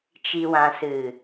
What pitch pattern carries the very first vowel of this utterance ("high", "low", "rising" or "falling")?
low